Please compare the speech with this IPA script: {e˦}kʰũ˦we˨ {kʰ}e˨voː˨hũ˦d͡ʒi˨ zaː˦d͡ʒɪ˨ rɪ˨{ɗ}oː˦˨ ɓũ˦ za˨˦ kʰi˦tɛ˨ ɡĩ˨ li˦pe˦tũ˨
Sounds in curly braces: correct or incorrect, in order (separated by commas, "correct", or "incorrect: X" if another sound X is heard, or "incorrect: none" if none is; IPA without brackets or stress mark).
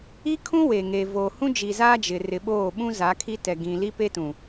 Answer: incorrect: i˦, incorrect: ŋ, incorrect: ɓ